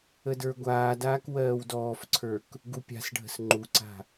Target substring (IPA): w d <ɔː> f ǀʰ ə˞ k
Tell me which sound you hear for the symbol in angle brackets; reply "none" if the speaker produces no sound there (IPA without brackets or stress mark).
ɔː